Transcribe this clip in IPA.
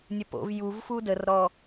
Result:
nʲ ɜ p o̰ v j u v f u d ə r ɾ ɔ

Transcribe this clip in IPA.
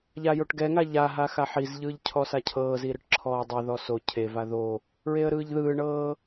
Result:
ʎ a j o ʈ ɡ ɛ ŋ a ʎ a ɦ a x a ħ i z ʎ ɯː ʎ cʰ ɔ s a cʰ ɤː z i ɾ ɯ ʈ ǁʰ ɔː dˤ ɛ ð ɔ s o cʰ e v a ð o | ɹ e ə̯ ɾ ɯː ʎ ð ɯː ɳ ɤː

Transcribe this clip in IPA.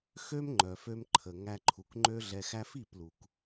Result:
x ø˦ m ŋ͡ǃ œ˨ f ø˧ m ǃʰ ə˨ ŋ æ˧ ǃʰ u˨ k ŋ͡ǃ ø˦ ɮ ɛ˧ x æ˦ f i˦˨ p l u˨ k

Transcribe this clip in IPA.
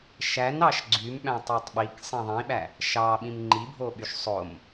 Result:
ʃ æ n ɑ ʃ ɡ͡ǀ y m ɓ æ̃ tˤ i tˤ ɓ i k sˤ ĩ ðˤ ĩ ɓ æ | ʃ ɑ ɓ ĩ m ŋ͡ǃ i bʱ o ɓ y ʃ sˤ o m

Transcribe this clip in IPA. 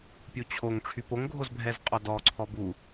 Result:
pʲ u t͡ɕʰ o ŋ ʈ͡ʂʰ y p o ŋ ɡʱ o z bʱ ɛ z qʼ ɔ d ɔ ǀʰ ɔ b u

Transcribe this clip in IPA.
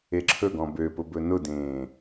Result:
e ǁʰ ɵ ɡ ɔ̃ b ø p ʊ b ɵ n ʊ d ẽː

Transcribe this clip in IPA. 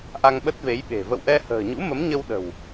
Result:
ʔ a˧ ŋ ɓ ə˦˥ t̚ v e˨˦ j ɓ e̤˨˩ v ə̰˧˨ w ʔ ɛ˧ h ə̤ː˨˩ ɲ ṵ˧˥ m ə˨˦ m ɲ ə˧ w ɗ ə̤˨˩ w

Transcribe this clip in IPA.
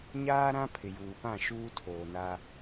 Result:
ɲ aː˦ ɾ ã˦ pʰ ɪ˨ j uː˨ p ã˦˨ ʃ uː˦ tʰ oː˨ n a˦

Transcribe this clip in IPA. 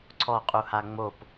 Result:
ǀʰ ɔ qʼ u h a ŋ͡m o p

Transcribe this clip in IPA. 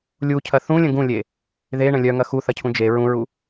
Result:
lʲ u cʰ ɐ θ ũ lʲ ə̃ ɡ ũ lʲ e | ð e ɳ ə̃ lʲ œ ŋ ɐ x u θ ɐ cʰ ũ d͡ʒ e ɹ ũ ɹ u

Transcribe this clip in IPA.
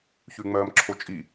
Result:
ç ʉ ŋ͡m ɜː m ǁʰ o t͡ʃʼ i

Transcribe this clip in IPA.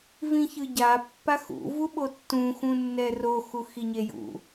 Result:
v ĩ ç ɯ ɟ a pː a x ṵ v u ɓ o tː ũ x ũ nː ɛ r o x u x i ɲ e j ṵ

